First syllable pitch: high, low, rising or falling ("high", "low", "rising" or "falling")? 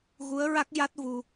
rising